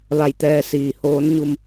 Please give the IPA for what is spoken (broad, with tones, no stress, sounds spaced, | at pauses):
ʋ a˧˩ j t̪ ɛː˧ s iː˩ h oː˧˥ n ɲ u˧ m